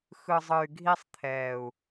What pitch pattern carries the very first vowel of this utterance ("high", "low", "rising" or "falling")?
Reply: low